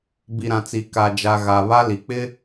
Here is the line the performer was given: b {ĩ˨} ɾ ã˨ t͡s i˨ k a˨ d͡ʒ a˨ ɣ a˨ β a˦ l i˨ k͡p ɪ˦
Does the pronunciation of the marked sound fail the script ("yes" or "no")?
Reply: yes